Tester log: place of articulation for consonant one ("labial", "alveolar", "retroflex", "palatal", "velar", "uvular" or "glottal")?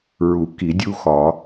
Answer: alveolar